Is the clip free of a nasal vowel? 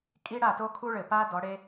yes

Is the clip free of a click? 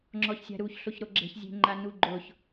no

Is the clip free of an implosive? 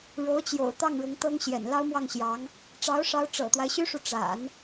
yes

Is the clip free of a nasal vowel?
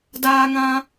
no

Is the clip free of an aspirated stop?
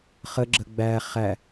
yes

